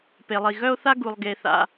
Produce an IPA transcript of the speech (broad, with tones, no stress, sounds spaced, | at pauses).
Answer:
p e˩ lˠ i˩ ɣ œ˥ o̯ θ a˥ ɡ u˩ lˠ ɡ e˩ θ a̰˩